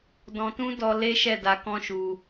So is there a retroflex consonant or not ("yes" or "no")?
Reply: no